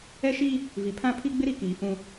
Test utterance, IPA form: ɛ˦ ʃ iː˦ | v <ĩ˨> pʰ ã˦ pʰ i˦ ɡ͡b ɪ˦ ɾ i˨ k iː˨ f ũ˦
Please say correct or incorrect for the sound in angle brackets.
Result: incorrect